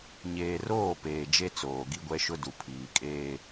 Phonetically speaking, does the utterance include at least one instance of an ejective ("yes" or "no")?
yes